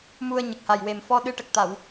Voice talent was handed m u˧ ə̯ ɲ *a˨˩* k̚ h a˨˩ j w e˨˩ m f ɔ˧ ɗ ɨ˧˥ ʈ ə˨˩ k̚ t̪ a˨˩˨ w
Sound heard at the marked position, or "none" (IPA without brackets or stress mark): ə˨˩